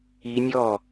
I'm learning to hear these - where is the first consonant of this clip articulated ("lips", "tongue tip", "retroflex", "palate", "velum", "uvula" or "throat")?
tongue tip